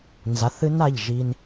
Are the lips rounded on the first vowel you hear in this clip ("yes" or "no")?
no